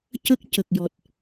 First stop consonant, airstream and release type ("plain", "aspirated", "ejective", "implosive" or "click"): plain